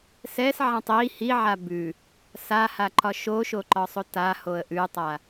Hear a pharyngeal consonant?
yes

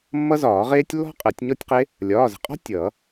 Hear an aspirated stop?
no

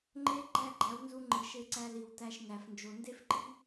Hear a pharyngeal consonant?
no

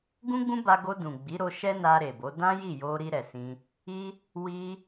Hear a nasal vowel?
yes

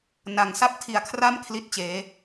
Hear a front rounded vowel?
no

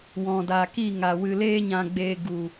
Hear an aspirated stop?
no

